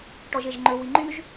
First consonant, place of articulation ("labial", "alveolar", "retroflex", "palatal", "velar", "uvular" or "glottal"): retroflex